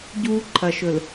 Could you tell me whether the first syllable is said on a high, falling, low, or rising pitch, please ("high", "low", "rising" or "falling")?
high